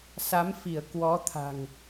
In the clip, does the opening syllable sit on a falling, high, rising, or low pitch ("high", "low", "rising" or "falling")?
rising